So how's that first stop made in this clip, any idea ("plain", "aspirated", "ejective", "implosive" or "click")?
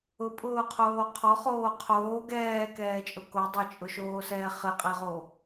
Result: ejective